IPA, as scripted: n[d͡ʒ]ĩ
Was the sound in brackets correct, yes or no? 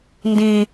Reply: no